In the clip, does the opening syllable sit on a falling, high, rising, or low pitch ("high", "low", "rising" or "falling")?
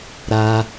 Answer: high